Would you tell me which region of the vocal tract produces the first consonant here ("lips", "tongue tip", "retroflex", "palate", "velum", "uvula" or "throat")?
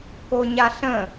velum